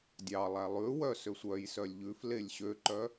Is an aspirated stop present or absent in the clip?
absent